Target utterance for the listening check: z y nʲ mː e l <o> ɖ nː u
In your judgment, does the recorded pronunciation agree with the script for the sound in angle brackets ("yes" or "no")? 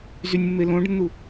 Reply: no